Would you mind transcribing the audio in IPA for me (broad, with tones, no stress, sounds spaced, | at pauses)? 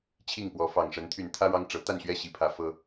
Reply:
t͡ɕʰ i˥˨ ŋ p w ɔ˨˦ f ɑ˨˩ ŋ ʂ ə˨˦ n t̪ʰ y˨˩ n t̪ʰ ä˦ ɻ ɑ˦ ŋ ʈ͡ʂ ɤ˨˦ t̪ a˥˨ n ɕ ɥ ɛ˥˨ ɕ i˨˩ pʰ ä˨˦ f ɤ˦